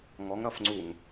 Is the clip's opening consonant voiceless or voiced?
voiced